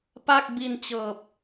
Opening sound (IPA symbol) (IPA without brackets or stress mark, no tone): p